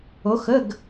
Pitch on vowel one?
rising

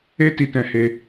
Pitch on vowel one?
high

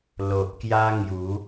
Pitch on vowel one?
low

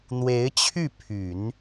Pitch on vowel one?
rising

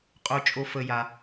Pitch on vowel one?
low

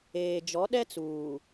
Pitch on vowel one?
low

